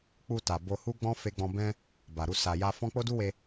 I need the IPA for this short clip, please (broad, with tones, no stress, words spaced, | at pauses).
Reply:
k͡pu˧ ta˨bo˧hu˦ɡ͡bɔ̃˦ fe˧ɡ͡bɔ̃˧ bɛ̃˦ | ba˨ɾu˧ sa˨ja˧fɔ̃˦ k͡po˦du˦we˧